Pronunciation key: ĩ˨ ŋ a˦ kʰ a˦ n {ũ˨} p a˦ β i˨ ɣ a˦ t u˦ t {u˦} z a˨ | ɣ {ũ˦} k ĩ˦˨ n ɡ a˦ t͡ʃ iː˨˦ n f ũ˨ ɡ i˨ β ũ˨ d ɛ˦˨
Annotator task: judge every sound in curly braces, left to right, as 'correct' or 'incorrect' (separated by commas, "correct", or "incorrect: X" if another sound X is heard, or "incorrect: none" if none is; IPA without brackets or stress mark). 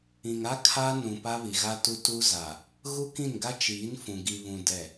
correct, correct, incorrect: u˦